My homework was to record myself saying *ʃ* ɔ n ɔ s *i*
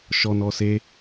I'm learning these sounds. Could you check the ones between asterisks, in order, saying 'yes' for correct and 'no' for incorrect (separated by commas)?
yes, no